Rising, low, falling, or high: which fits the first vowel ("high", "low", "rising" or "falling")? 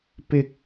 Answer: high